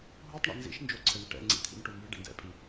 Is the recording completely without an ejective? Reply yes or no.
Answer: no